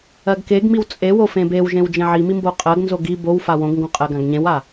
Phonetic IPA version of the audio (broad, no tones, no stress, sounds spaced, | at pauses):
ɜ ɡ k e ɡ m i w t͡sʼ e w o f ẽ b e w ʒ ẽ w d͡ʒ ẽ ʕ i m i m b o qʼ ɜ ɡ n z o ɡ i b o w f a w õ ɡ ŋ ɡ õ qʼ ɜ ɡ ã ɡ ɲ ẽ w a